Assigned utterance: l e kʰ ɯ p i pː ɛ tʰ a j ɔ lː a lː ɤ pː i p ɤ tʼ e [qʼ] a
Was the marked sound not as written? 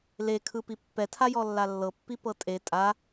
yes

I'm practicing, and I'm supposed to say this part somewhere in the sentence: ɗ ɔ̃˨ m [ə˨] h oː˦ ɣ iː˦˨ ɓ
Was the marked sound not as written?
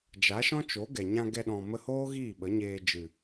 yes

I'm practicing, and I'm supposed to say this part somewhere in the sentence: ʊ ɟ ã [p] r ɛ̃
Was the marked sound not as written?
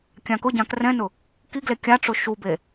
yes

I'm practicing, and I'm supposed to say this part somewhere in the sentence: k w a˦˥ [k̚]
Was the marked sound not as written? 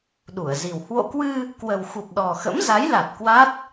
yes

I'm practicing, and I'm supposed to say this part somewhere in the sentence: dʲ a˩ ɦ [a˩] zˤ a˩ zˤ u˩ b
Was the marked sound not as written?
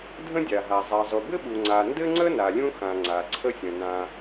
no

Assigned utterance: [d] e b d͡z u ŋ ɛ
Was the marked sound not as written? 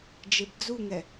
yes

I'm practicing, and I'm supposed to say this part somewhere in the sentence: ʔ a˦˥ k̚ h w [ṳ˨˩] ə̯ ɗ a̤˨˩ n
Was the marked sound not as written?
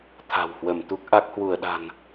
yes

